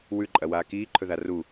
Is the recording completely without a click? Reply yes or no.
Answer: no